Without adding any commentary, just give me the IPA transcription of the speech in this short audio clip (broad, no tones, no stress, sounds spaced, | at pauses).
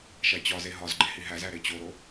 ʃ æ t͡ɕ ɒ z e ɦ ɒ z ɡ͡ǃ e h i ɦ æ z æ ɾ e t͡ɕ o ɾ o